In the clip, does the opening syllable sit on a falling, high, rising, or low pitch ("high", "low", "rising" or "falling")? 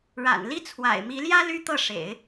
low